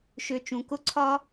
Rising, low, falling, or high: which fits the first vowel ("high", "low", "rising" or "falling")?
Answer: low